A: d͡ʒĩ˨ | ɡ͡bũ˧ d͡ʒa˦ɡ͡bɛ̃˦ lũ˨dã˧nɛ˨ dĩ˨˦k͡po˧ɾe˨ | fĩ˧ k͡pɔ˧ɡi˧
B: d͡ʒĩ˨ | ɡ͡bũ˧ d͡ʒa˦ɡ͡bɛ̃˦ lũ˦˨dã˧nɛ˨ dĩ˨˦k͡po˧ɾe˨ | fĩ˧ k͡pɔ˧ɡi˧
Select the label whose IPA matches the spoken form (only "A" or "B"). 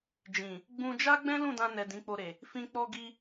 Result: B